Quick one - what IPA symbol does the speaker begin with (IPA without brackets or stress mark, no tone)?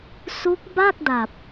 s